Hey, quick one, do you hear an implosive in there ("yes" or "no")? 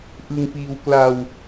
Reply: no